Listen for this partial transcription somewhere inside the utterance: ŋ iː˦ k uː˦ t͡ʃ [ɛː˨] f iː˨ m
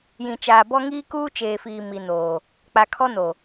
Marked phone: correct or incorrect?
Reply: incorrect